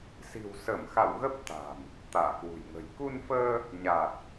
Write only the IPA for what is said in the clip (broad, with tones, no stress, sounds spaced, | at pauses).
s i̤˨˩ w s ə˧˩ m x a̰˧˨ w ɣ ə˦˥ p̚ t̪ a̤˨˩ m | t̪ a̰ː˧˨ k w ṳ˨˩ j ŋ ə̤˨˩ j k u˧ n f əː˧ | ɲ a˨˩ t̚